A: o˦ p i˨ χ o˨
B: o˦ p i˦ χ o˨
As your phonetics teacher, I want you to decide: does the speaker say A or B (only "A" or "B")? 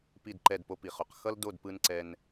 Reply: A